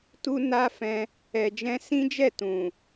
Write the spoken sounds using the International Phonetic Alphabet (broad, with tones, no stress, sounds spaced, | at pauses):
t u˦ n a˦ f ɛ̃˧ | ɛ˨ d͡ʒ ɛ̃˧ s ĩ˦ d͡ʒ ɛ˦˨ t ũ˨